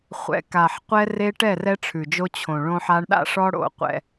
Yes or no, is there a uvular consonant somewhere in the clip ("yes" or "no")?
yes